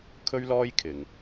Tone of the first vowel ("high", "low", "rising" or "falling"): high